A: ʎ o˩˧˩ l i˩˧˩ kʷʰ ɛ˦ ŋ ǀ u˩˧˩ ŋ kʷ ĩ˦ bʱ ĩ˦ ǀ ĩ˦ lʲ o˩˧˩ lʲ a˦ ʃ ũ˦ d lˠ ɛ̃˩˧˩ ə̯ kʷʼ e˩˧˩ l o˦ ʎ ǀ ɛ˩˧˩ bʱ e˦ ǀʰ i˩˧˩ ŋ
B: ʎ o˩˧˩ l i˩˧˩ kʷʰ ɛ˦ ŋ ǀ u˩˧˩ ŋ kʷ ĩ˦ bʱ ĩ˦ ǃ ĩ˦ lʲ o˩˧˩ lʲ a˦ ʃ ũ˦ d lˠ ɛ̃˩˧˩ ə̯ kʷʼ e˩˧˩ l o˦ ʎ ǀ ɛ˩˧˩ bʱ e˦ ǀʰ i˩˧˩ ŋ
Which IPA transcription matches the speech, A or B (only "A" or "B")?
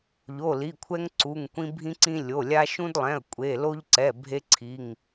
A